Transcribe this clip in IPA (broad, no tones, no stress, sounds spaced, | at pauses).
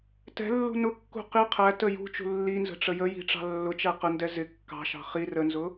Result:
t ɛ̤ lː ṳ n ʊ kː ṳ q i qʰ æ t ə j ṳ t͡ʃ ṳ lː i n z ə̤ ʈ͡ʂ ə j ə j i̤ ʈ͡ʂ ɑ̤ lː ʊ t͡ʃ æ q ə n d ɛ z ɪ kː ɑ̤ ʃ ɑ̤ χ i r ə n z ʊ